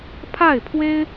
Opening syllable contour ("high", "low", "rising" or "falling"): falling